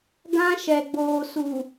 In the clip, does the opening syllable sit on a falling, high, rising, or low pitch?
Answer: high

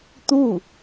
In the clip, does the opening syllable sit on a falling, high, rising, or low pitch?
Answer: falling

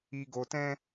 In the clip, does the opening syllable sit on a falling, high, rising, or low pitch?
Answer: low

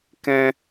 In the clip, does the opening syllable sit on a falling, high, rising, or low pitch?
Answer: high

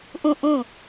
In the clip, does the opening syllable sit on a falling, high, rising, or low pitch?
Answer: falling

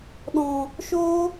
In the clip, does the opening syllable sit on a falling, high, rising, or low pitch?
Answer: low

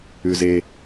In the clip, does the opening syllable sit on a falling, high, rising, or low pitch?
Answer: low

